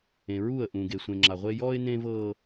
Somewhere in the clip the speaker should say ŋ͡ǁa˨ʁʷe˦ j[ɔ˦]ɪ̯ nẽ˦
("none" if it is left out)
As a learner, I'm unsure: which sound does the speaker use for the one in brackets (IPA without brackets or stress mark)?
ɔ˦